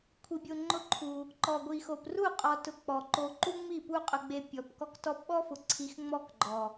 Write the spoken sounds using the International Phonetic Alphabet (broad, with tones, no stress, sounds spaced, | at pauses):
kʷʰ i˧ bʲ o˧ ŋ͡ǃ ʊ˦ ǃʰ u˧ | ǃ ɔ˨ ɡʷ i˨ x o˨ p r u˦˨ qʼ ɔ˧ t ʊ˧ k͡p ɔ˨ ǃ o˧ ǃ u˦ ŋ͡m i˦˨ p u˦ qʼ ʊ˧ ɡ͡b e˧ pʲ ɔ˨ p k ɔ˧ k t ɔ˧ p ɓ ɔ˦ f ʊ˨ ǀʰ i˧ x ŋ͡m ɔ˦ k ɡ͡ǃ ɔ˨